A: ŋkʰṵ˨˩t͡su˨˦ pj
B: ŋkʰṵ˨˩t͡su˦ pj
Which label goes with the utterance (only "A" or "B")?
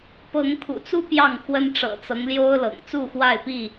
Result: B